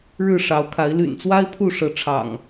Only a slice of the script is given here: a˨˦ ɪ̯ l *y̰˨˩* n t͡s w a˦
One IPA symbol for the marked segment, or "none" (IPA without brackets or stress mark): y̰˨˩